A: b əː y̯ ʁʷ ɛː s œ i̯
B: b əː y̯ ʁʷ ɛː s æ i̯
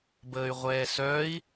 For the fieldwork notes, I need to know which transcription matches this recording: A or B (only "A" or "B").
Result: A